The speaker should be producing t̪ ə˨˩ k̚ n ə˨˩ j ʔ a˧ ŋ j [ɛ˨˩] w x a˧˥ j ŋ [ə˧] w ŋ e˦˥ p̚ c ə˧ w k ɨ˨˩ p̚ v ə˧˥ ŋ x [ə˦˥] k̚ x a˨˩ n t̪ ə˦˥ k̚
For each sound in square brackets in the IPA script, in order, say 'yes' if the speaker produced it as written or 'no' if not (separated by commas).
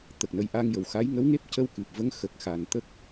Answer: no, no, no